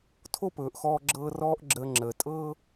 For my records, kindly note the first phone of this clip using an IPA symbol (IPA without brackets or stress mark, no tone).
tʰ